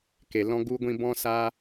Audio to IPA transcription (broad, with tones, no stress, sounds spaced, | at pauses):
k e˨ l ɔ̃˦ ɡ u˦ ɡʷ ĩ˦ b ɔ̃˦ s aː˦